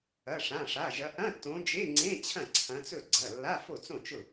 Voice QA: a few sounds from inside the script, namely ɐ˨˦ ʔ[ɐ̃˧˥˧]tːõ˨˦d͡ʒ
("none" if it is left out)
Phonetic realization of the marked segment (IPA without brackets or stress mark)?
ɐ̃˧˥˧